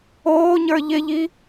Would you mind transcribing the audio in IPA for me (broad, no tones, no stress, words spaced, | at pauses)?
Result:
oːɲə˞ ʎɪʎi